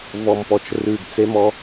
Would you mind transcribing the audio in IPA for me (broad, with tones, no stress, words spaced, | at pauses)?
vɔ˨mpɔ˨t͡ʃ rʉ˨ɡ t͡se˦mɔ˦